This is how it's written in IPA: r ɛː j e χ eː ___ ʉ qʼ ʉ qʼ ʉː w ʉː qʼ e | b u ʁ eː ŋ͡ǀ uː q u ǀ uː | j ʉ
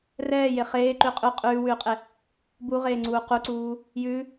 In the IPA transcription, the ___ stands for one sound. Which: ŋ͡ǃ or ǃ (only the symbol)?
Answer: ǃ